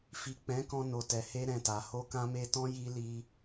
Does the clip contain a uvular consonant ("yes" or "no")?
no